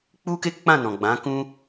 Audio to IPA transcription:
k͡p u˦ k e˦ k͡p ã˦˨ n ɔ̃˨ ɡ͡b ã˨˦ k ũ˦

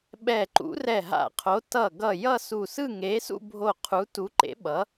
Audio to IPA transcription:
ɓ ɛ˧˩ ǃ ṵ˨˥ r ɛ˧˩ ɦ a̰˧˩ qʰ o˨˥ t ʌ˧˩ ɡ ʌ˧˩ j ʌ˥˧ s u˧˩ s ɯ˥˧ ŋ e˨˥ s ṵ˥˧ bʱ o˧˩ qʰ u˨˥ t u˨˥ ǃ ḛ˨˥ ɓ ʌ˨˥

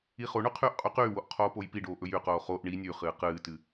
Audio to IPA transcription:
i χ o ɳ ʉ qʰ yː ʔ qʼ y q yː w o ʔ qʰ oː p o j p i ɖ oː ʔ ɵ j y q oː χ o ʔ ɳ i nʲ ʉ χ ɨː q ɨː t ɨ

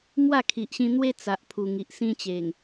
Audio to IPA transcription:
m w a˥˧ kʰ i˨ ʔ ɕ ĩ˧ n̪ w e˦ t͡s a˨ ʔ pʰ u˨˩ ŋ i˨ ʔ s ĩ˦ t͡ɕ e˨˩ ŋ

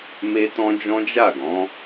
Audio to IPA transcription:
m e˦ t ɔ̃˦ d͡ʒ ɔ̃˦ d͡ʒ a˦˨ ɡ ɔ̃˨˦

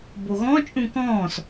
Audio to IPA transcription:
b o ɣ ɔ̃ t͡ʃʼ ũ k ɔ̃ː s

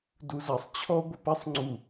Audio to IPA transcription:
d u z ɛ sˤ t͡ɕʰ ɔ ɡʷ ɘ p ɛ sˤ ŋ͡ǀ u

